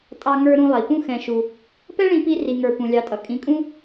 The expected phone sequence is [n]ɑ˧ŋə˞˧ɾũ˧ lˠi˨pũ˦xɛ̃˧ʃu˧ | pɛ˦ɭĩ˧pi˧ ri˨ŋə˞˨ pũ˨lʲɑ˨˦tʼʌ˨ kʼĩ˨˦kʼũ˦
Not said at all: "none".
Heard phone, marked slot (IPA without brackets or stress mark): tʼ